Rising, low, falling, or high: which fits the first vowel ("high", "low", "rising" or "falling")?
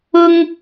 high